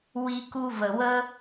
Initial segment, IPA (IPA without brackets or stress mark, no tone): w